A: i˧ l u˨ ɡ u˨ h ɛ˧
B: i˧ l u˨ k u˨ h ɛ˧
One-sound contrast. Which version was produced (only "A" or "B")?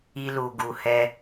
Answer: A